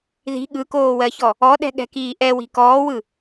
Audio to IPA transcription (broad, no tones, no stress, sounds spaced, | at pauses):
ð i̤ ɠ ɯ k oː w ɜ ç ɔ | ɔ ɗ ɛ̤ ɠ ɛ̤ k iː ʔ ɛ w i̤ k ɔː w ɯ